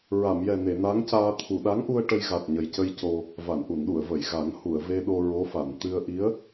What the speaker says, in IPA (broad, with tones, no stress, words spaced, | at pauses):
ɹa˨˩˨mjɛ˨˩ne˨˩˨ na˧˥ŋcaː˧ t̪ʰu˨˩˨ɗa˧˥ŋʔu˧ə̯ ʈə˧jɣa˨˩t̚ɲə˨˩jcə˧j co˧ | va˨˩˨nʔu˨˩˨nɗu˨˩˨ə̯və˨˩˨j ɣa˨˩˦ŋhu˨˩˨ə̯ve˧ɗo˧ ɹo˧˥fa˨˩˨n t̪ɨ˧ə̯ ʔi˧˥ə̯